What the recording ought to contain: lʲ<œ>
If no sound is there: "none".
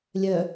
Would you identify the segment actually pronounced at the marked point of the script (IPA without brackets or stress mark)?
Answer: œ